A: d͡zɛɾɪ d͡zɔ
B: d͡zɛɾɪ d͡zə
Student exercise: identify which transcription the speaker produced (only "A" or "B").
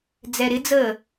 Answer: B